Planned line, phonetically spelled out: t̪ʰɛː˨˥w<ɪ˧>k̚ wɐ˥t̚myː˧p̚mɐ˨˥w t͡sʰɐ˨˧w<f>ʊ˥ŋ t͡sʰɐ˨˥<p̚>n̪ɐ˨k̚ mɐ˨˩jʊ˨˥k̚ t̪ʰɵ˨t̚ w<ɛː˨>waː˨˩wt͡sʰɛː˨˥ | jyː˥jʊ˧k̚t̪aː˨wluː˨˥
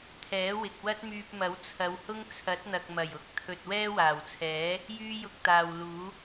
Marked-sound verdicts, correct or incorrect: incorrect: ɪ˨, incorrect: h, incorrect: t̚, incorrect: ɛː˥

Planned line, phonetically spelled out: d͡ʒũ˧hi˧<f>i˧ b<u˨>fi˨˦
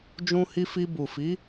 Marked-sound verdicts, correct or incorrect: correct, correct

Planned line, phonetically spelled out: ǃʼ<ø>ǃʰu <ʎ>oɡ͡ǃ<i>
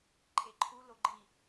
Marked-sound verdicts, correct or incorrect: incorrect: e, incorrect: l, correct

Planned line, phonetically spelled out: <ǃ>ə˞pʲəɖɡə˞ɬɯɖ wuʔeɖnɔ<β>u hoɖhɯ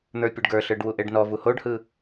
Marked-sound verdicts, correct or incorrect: incorrect: n̪, incorrect: v

